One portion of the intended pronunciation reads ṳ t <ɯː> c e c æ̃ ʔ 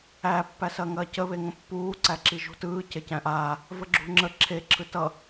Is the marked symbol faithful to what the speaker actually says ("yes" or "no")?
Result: yes